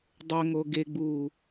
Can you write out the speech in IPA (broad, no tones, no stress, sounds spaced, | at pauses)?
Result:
dˤ ɵ ŋ o ɡ e ɡ͡b uː